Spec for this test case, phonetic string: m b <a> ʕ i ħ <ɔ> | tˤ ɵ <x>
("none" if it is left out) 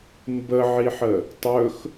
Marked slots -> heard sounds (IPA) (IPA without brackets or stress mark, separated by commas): ə, ə, x